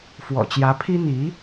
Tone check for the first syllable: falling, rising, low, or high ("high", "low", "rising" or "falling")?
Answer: low